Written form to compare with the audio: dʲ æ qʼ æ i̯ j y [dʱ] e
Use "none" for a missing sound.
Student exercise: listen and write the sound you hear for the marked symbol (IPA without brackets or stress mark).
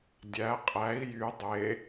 dˤ